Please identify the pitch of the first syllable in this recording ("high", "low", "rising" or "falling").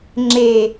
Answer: low